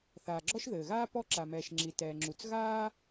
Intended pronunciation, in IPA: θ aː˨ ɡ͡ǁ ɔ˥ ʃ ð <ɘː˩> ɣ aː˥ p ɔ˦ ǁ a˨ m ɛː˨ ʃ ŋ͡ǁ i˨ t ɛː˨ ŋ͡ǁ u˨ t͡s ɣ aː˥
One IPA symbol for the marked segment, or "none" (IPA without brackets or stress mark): ɘː˩